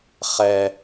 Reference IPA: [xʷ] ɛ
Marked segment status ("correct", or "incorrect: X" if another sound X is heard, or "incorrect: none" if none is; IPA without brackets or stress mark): incorrect: χ